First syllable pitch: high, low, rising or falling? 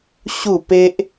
falling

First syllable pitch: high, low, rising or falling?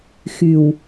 low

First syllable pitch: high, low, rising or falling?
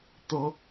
rising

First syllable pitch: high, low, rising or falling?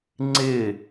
falling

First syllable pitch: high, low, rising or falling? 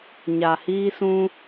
low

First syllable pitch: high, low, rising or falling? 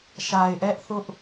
low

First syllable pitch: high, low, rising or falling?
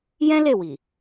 high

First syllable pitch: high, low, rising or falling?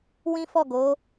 high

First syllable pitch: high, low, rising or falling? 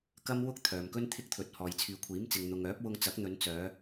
high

